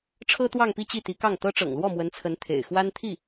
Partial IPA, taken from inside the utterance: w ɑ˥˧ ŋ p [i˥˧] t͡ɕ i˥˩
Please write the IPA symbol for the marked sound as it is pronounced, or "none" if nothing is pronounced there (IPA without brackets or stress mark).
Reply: i˥˧